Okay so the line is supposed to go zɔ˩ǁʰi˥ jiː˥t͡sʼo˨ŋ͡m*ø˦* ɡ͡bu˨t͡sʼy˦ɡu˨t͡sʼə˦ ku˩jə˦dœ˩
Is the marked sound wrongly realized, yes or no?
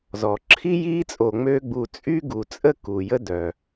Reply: no